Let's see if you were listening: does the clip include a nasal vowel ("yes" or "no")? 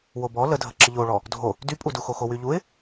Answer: no